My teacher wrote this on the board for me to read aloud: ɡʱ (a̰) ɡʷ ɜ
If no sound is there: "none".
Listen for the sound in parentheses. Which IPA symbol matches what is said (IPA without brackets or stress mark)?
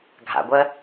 a̰